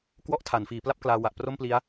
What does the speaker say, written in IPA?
k w ɔ˦˥ ʔ tʰ a˩˦ n f iː˩˦ p l a˥˩ p̚ k l aː˧ w a˨˩ ʔ p r o˥˩ m p l i˦˥ a̯

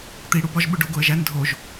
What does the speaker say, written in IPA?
t̪ i ɽ u b ɒ ʒ ɓ u ɖ o ɡ o ə̯ ʒ æ n dʱ o ʒ

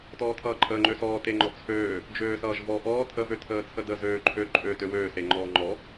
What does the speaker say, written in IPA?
t ɔː tʰ ʌː ǃʼ əː ŋ͡ǃ ø s ɔː t e ŋ͡ǃ ɔ t͡sʰ øː | d͡ʒ øː s ʌː ʒ v ɔ ʔ ɔː tʰ ə v ø tʰ əː t͡sʰ ə d ə z øː ǃʰ ø ǃʼ ø t ø w øː s e ŋ͡ǃ ɔː ŋ͡ǃ ɔ

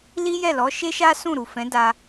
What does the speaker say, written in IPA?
l i˦ j ɛ˦˨ l ɔ˨˦ ʃ e˦ ʃ a˦ s ũ˦˨ ɾ u˨ f ɛ̃˨˦ d a˧

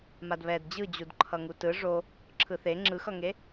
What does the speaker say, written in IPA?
m a d β ɛ d d͡ʑ ɯ d͡ʑ u d ǃʰ ʌ ŋ u t ɯ ʐ o | ǁʰ ɯ θ e ŋ͡ǁ ɯ x ʌ ŋ e

